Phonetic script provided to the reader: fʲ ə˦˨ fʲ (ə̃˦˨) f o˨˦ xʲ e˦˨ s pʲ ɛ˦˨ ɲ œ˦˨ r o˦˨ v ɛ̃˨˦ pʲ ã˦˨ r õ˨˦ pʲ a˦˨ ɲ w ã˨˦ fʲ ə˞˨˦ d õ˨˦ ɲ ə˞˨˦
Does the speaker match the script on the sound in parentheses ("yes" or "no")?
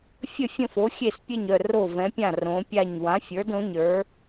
yes